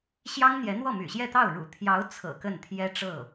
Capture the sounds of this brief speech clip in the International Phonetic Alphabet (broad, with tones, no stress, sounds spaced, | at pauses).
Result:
ɕ j ɑ˥ ŋ n̪ j ɛ˧˥ n̪ w ɔ˥˩ m y̰˨˩ ɕ j ɛ˥˧ t̪ ɑ˥˩ ʊ̯ ɻ ṵ˨˩ t̪ʰ j ɑ˧˥ ʊ̯ t͡sʰ ɤ̰˨˩ k ə˥˩ n t̪ʰ j ɛ˥ ʈ͡ʂ ɤ˥˩